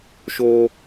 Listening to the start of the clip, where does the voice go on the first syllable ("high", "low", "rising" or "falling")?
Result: low